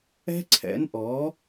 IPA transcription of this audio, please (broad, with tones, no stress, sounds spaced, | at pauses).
ɛ̤˦ ǀʰ ɛ̰˨˦ n ʔ ɔ˨˦